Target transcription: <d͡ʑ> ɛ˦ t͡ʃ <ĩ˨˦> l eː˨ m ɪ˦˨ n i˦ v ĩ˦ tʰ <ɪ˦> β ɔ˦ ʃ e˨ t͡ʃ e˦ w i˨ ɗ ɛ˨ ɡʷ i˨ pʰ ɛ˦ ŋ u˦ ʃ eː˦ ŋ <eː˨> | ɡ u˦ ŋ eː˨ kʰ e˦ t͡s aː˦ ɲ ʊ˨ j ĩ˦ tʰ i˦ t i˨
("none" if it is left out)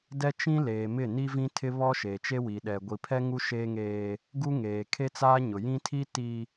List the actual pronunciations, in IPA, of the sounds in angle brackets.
d, ĩ˦, ɪ˦, eː˦

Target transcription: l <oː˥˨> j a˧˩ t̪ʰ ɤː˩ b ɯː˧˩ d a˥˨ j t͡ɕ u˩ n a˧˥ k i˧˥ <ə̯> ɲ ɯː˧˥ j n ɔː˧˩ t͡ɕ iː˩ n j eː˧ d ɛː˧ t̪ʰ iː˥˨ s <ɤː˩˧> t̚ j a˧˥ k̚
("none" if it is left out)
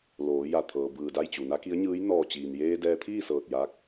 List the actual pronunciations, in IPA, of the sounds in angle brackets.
oː˩˧, ə̯, ɤː˧˩

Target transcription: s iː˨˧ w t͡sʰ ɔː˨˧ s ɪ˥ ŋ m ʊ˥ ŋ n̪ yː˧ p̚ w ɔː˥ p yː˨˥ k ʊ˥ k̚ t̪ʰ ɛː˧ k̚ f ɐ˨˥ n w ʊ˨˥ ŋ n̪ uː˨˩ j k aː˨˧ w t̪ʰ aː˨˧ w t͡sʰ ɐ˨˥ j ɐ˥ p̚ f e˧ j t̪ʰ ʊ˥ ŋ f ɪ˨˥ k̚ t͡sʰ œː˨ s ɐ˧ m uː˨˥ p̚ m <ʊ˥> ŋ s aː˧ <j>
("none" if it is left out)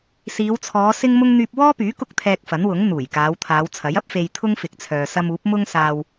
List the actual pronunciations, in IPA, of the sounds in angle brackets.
ʊ˥, w

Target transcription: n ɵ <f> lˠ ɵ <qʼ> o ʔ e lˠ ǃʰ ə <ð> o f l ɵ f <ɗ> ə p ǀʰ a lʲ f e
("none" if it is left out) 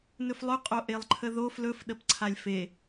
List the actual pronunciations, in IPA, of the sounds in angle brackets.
f, qʼ, ð, ɗ

